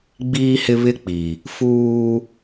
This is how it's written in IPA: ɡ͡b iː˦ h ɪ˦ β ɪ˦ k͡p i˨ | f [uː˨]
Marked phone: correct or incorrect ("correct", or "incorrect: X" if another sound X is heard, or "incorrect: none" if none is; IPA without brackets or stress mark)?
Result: incorrect: uː˦